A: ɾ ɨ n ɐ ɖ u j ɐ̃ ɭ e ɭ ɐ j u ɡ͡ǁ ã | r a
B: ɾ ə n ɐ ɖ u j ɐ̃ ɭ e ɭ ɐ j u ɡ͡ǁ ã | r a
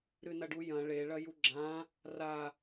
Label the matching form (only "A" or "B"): A